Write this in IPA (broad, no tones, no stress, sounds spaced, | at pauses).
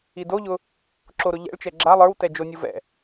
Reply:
i d o ʎ ʊ | ǁ o ɾ ʊ ʎ ɛ̰ ɭ t͡ʃ ɛ ɡ͡ǁ a lˠ ə˞ w t ɛ d͡ʒ o nʲ u v ɛ̰